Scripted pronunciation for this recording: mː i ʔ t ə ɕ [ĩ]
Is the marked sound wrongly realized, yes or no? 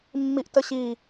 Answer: yes